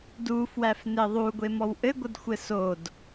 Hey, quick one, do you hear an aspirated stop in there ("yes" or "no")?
no